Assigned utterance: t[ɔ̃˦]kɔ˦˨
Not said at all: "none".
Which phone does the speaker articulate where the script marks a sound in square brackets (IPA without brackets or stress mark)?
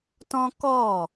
ɔ̃˦